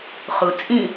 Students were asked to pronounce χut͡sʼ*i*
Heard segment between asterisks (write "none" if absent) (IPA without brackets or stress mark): ĩ